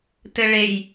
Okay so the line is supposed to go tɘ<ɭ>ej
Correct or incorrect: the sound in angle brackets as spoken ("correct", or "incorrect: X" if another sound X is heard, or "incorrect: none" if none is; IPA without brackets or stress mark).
correct